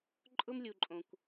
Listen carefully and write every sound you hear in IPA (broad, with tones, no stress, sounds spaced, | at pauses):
ǃʼ ʊ˦ m lʲ u˨ ǃʼ õ˨ kʷ